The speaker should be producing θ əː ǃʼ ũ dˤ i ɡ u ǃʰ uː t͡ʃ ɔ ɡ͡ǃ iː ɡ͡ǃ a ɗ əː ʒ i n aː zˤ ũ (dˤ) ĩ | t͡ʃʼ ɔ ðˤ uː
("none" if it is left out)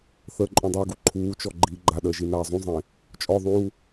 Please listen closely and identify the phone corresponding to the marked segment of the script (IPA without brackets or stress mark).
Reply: zˤ